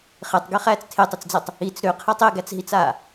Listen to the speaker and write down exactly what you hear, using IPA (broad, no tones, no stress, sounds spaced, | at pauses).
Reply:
χ e tˤ ɡ e χ æː t͡s tʰ e tˤ ɯ t͡s d͡z æ tˤ | i t͡s ɾ ø qʰ ɛ tˤ e ɡ æ t͡s ɦ i t͡s aː